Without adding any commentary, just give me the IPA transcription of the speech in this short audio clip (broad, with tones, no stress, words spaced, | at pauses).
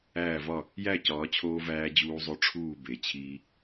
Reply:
æː˥˨vɒ˥˨ | jæ˥˨cɒː˩˧t͡ɕʰoː˧ væː˧d͡ʑuː˧zˤo˧ ʈ͡ʂʰuː˥˨be˩˧ t͡ɕʰiː˧